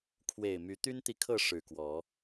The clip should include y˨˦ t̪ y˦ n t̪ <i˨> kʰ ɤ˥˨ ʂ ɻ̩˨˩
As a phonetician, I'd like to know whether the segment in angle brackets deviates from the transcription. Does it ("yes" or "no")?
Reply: no